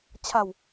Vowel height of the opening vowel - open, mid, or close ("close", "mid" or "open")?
open